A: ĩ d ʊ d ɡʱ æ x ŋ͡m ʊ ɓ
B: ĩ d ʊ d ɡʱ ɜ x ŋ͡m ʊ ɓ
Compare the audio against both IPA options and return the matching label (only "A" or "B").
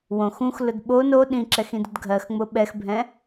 B